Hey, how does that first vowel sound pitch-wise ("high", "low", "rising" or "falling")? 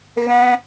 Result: high